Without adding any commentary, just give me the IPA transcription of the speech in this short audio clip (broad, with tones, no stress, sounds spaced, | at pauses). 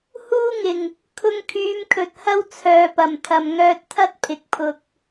h uː˥ ŋ ɪ˨˩ ŋ | kʰ ʊ˧ ŋ kʰ yː˨˧ m kʰ ɵ˨ t̚ h ɐ˥ w t͡sʰ œː˨ p ɐ˨˩ m t̪ʰ ɐ˨ m ŋ œː˧ t̚ t̪ʰ ɐ˥ t̚ pʰ ɪ˨ k̚ pʰ ʊ˧ k̚